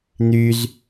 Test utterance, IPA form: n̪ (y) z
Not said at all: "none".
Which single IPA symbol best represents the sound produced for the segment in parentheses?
y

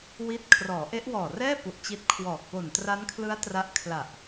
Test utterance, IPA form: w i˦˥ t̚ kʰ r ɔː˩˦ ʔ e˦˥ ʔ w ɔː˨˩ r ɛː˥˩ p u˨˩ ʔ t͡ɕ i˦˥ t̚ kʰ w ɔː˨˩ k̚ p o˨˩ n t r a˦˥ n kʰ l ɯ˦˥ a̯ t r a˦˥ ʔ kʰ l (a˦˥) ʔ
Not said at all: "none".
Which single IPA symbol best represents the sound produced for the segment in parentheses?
a˨˩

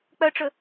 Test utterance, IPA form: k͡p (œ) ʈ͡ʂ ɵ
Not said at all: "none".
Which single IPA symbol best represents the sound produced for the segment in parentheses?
œ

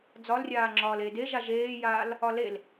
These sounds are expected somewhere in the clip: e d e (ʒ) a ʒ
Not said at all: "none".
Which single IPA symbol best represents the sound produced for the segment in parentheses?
ʒ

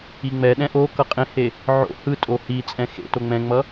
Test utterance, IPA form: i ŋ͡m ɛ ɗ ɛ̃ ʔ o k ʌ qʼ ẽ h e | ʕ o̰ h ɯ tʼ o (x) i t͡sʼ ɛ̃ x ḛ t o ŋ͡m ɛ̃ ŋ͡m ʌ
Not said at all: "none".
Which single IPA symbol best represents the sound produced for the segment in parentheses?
h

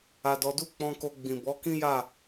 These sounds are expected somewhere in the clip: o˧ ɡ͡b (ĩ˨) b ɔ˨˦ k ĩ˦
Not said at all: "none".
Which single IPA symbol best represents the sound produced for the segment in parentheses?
ĩ˨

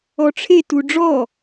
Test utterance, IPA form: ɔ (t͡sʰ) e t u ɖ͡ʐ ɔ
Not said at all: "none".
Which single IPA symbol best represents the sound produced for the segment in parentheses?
ʈ͡ʂʰ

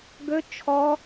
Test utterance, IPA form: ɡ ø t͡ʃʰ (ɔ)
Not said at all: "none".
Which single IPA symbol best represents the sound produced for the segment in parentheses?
ɔ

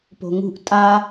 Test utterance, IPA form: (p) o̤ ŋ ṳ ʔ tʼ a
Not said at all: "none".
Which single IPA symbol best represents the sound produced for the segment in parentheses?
p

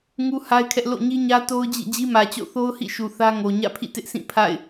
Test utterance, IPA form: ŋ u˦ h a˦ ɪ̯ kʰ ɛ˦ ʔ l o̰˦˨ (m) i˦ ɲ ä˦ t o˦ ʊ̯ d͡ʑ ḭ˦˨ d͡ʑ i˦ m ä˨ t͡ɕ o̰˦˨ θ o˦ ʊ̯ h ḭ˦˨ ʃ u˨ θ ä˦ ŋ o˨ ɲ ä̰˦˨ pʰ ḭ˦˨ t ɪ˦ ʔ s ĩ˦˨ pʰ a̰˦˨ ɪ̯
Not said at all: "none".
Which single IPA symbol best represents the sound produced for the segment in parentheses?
ɲ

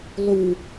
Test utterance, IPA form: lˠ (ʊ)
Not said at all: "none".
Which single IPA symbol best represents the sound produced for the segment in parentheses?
u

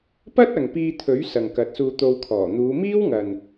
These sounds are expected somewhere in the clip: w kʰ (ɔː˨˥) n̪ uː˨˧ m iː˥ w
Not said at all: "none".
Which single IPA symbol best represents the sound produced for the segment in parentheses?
ɔː˨˩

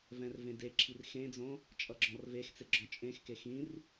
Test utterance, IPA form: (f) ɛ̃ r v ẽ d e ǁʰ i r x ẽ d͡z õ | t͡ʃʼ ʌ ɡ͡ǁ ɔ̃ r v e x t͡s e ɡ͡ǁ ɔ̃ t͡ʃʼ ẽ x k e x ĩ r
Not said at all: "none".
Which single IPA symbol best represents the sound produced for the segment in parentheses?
v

